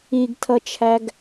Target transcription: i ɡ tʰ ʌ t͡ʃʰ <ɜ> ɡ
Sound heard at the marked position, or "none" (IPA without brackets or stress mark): æ